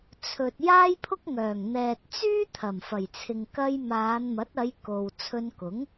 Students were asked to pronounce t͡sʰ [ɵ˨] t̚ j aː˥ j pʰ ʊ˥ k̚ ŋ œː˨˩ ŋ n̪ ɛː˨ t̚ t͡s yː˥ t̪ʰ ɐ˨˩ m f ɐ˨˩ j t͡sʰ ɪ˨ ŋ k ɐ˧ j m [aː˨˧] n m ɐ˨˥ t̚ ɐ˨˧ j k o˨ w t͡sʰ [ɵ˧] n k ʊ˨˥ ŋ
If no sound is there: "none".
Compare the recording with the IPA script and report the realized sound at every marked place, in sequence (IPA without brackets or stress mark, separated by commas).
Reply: ɵ˨, aː˨˧, ɵ˧